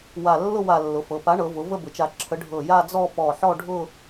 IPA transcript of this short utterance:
w a˧˩ lː ʊ˥˧ w a˧˩ lː ʊ˩˧ f ɤ˩˧ p a˨˥ ɳ ɤ˩˧ v ʊ˩˧ v ə˥˧ b ʊ˩˧ t͡ʃ a˧˩ ǁʰ ə˨˥ ɖʱ ɤ˧˩ j a˥˧ d͡z ɔ˥˧ p ɔ˧˩ ħ ɔ˥˧ ɖʱ ʊ˥˧

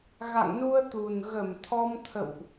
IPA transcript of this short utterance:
ɣ a̰˧˨ ŋ n u˧ ə̯ t̪ u˨˩ n ɣ ə˧˩ m t̪ʰ ɔ˧ m t̪ʰ ə̰˧˨ w ʔ

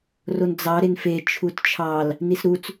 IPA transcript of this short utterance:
r o n d͡z ɑ ɾ e n f e t͡ʃʰ u t t͡ʃʰ ɑ l | n i s ɾ u t͡s

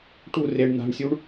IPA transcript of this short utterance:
ʈ u r e ɳ n̪ a̤ ɳ sʲ u ɳ

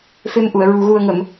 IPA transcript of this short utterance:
f e˧ m ʔ u˨˩˨ ə̯ ɹ u˨˩ ɣ u˨˩ ə̯ ŋ ə˨˩˨ m

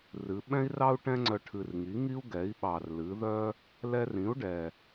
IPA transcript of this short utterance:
r ɨ˩˧ ɓ ɛ̃˥ i̯ r ɑ˥ u̯ ʈ ɛ̃˥ ŋ͡ǀ œ˧ ʈʰ ɨ˨˩ r ŋ i˩˥ ŋ i˥ u̯ ɡ ɛ˩˥ i̯ ɓ ɑ˨˩ r l ɨ˩˥ ð œ˥ | l ɛ˧ r ĩ˩˥ u̯ ɖ ɛ˨˩

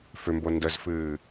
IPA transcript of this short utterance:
f ʏ m b o n d ə z f ɨː

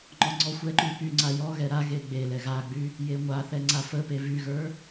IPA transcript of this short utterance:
ŋ͡ǃ ɔ ŋ͡ǀ ɔ xʷ ɛ ǃ y p y ŋ͡ǀ a j ɔ ɣ ɛ ɾ a ɣ e ɡ͡b e l ɛ ɣ a ɡ͡b y | j e ŋʷ a θ ɛ ŋ͡ǀ a f ə p e v y ɣ ə˞

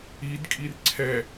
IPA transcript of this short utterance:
i d kʼ i r ǀʰ ɛ

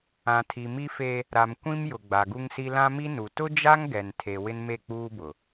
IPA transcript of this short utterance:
ã˨ tʰ i˨ m i˦ f e˦ | ɾ a˨ m kʷ ĩ˦ m j ʊ˨ ɡ͡b a˨ ɡ u˦ ŋ s i˦ l ã˦ m i˦ n u˨ t ʊ˦ d͡ʒ a˦ ŋ ɡ ɛ˨ n tʰ e˨ w ɪ˦ n m e˦˨ k͡p uː˦ b ʊ˨

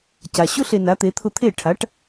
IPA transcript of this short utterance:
c a˩ ɕ ʊ˥ ɬ e˧ n a˩˥ t̪ e˩˥ t̪ʰ ʊ˧ t̪ʰ e˥˩ ʈʰ a˩˥ ʈ

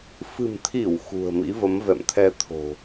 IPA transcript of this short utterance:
f ɨ̤˨˩ m t̪ʰ i˧˩ w x ṳ˨˩ ə̯ m ḭ˧˥ v ə˨˦ m v ɛ̰˧˨ m t̪ʰ ɛ˧ t̪ʰ o̤˨˩

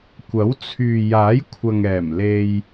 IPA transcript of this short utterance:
kʷ ɐ˨˥ w t͡sʰ yː˨ j aː˨˥ j kʷʰ ɐ˨ ŋ ɛː˨˩ m l e˧ j

